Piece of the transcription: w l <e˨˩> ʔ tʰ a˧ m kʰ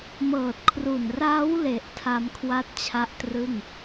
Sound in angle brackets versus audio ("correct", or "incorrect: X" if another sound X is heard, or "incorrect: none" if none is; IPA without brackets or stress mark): correct